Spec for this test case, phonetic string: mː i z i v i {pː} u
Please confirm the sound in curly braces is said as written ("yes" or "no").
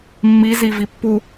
yes